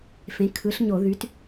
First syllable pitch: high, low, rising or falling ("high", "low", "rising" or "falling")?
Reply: rising